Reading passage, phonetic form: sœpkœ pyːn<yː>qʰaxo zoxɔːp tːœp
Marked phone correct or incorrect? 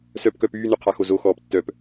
incorrect